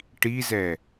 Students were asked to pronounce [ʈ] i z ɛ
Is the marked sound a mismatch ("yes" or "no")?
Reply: no